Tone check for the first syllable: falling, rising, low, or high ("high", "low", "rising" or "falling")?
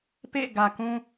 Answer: falling